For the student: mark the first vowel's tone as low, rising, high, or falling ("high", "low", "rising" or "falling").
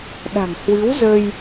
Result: low